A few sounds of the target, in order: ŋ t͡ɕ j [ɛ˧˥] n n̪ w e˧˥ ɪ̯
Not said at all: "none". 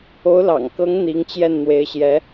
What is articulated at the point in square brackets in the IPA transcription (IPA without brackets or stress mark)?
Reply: ɛ˥˩